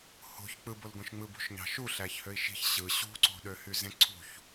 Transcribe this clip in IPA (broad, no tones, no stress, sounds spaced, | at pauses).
h o̤ ç k͡p ɯ b o l ɡ õ ʃ ŋ͡m ɯ b ṳ ʃ ɲ ɑ̤ ʃ u ɬ æ ç h ø i̯ ʃ i̤ ç ɕ ɯ ɕ ṳ ǀ o̤ ɗ ø h y z ẽ ǀʰ ṳ ç